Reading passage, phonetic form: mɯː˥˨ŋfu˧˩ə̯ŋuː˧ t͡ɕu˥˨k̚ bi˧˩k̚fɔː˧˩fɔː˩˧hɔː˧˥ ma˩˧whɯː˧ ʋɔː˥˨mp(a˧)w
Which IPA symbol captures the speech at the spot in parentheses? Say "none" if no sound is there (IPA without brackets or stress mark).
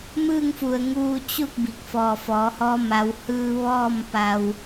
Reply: a˧